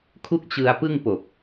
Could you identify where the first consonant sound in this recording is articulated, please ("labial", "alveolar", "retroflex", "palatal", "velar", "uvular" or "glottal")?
velar